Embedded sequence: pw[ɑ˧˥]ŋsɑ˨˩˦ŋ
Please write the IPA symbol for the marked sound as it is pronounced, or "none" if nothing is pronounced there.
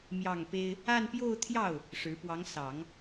ɑ˧˥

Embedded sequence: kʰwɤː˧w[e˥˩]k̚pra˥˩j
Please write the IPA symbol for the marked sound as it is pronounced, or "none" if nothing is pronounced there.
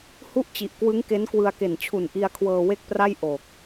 e˥˩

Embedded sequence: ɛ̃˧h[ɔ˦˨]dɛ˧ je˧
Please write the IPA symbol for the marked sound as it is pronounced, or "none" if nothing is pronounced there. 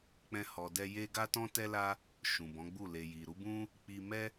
ɔ˨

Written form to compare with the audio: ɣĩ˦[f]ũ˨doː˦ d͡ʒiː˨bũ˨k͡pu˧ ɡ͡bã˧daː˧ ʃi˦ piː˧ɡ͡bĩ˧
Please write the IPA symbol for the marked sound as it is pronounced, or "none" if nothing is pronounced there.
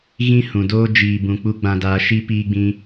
h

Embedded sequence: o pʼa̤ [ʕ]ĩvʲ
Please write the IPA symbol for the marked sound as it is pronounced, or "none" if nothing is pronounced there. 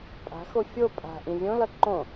ʔ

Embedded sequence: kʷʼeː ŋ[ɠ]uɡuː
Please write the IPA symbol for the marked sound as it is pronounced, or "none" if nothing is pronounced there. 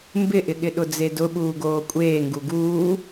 ɡ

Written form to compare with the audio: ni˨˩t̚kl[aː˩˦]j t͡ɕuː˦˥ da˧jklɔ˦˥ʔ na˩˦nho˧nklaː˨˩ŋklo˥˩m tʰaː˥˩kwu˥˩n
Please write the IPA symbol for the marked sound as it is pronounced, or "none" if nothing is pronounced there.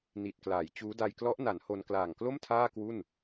aː˩˦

